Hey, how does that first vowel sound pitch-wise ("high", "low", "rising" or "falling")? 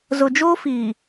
low